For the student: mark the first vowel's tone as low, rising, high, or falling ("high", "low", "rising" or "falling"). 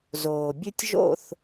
low